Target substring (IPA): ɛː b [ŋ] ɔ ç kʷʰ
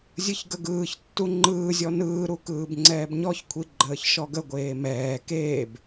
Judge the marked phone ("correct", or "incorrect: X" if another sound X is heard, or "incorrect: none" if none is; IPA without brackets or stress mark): incorrect: ɲ